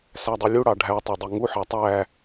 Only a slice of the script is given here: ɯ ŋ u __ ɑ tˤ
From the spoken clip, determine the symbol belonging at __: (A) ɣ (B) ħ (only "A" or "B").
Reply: B